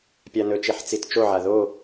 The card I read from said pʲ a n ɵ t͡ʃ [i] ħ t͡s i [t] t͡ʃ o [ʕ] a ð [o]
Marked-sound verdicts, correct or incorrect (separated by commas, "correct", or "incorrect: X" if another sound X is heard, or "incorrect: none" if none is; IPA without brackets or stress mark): incorrect: e, correct, correct, correct